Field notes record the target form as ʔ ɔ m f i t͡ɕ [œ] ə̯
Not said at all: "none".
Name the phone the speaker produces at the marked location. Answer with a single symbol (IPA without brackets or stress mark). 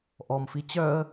œ